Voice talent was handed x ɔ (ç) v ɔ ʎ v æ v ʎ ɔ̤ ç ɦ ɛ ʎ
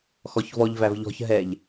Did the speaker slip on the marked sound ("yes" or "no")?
no